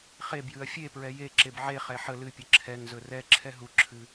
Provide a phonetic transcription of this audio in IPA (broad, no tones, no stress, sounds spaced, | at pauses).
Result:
χ e b j ɨ ɐ̯ fʲ e p ɹ ɛ j e ǁ e b ʕ e χ ɛ ħ ə l ɨ pʲ ə ǁʰ ɛ ŋ z ɵ r ɛ ǁʰ ɛ ɦ u ǁʰ ɨ